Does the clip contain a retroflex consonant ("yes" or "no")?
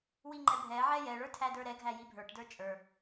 yes